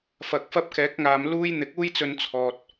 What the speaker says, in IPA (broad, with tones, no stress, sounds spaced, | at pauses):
f ɐ˨ k̚ f ɐ˥ p̚ k ɛː˨˥ k̚ ŋ aː˨ m l uː˥ j n̪ ɪ˨˥ k̚ uː˥ j t͡s ɵ˧ n t͡sʰ ɔː˨ t̚